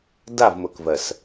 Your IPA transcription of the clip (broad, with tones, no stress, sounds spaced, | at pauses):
d a˦˨ v m ʊ˨ k v ɜ˨ s